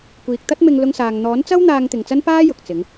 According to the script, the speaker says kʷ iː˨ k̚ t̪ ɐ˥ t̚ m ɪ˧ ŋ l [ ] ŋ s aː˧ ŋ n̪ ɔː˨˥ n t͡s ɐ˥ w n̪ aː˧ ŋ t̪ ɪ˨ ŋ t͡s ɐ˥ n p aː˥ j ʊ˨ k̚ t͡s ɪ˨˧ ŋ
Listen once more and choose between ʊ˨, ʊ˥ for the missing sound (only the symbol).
ʊ˥